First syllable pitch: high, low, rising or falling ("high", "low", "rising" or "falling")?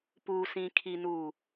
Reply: low